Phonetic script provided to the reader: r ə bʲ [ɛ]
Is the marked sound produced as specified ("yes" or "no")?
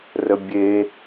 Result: no